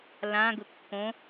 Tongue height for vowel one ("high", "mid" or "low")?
low